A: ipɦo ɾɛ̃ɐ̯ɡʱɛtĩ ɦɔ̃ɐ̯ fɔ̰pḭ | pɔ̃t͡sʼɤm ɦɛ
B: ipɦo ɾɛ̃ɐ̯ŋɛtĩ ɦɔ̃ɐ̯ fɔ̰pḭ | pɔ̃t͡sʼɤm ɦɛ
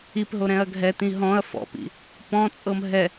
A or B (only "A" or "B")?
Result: A